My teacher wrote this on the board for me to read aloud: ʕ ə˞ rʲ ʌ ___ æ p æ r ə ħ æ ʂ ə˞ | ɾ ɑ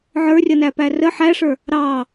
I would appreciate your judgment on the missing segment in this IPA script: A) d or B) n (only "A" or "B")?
B